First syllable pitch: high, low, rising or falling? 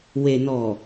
low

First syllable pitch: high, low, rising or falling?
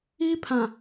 high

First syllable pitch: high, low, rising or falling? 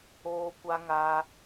high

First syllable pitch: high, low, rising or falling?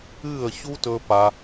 falling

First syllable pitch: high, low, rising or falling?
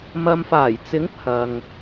low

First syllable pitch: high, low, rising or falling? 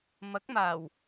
rising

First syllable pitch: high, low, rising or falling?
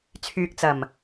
low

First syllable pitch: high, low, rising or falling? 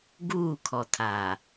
falling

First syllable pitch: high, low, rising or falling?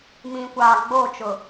low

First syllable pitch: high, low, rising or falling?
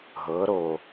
rising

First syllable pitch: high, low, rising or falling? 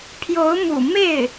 rising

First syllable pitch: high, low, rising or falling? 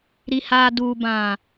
low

